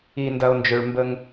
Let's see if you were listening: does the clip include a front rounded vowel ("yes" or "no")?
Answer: yes